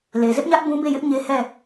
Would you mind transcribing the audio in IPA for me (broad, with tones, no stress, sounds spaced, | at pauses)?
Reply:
l e˨ z ɪ˦ ʔ ɲ ä˦ ʔ b ũ˦ b e˦˨ j ɪ˦ ʔ ɲ e˦ h ɛ˦˨